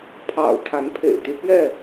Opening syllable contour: low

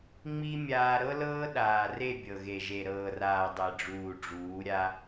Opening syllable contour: high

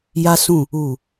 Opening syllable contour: high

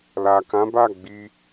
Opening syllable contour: low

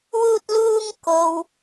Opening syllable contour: high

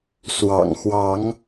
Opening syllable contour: low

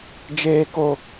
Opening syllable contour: low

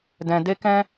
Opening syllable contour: low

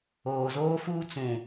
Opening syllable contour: low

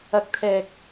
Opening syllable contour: rising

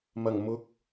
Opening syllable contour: low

